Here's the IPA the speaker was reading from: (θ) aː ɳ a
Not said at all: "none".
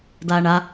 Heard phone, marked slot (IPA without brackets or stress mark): d